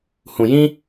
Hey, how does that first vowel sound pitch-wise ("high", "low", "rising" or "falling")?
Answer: low